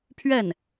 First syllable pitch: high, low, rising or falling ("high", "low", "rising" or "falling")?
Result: falling